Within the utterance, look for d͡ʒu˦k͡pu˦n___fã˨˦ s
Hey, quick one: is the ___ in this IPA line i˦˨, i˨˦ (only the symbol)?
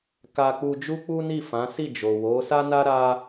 i˦˨